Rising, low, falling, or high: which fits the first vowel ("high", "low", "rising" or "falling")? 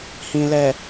low